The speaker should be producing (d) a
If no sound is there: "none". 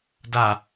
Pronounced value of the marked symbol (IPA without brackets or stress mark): d